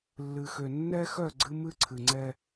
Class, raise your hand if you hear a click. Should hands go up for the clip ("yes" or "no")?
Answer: yes